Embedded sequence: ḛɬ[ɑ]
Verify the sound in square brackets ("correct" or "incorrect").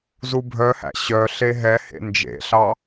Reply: correct